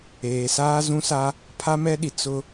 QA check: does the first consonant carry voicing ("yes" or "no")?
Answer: no